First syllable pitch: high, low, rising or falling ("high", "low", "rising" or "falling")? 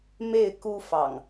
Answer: falling